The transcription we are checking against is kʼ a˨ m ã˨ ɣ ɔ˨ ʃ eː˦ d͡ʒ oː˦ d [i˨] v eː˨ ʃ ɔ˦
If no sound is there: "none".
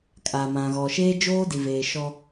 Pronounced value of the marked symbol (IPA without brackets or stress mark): i˨